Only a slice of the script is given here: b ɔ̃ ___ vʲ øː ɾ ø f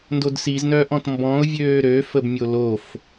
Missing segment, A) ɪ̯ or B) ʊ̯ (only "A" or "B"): B